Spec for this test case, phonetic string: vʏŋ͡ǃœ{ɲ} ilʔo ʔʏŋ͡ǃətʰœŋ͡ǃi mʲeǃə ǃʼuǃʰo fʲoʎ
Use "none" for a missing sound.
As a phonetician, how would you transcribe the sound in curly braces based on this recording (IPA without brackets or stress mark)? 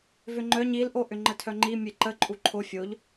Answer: ɲ